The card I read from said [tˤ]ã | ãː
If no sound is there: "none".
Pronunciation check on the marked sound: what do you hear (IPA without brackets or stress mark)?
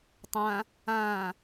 tˤ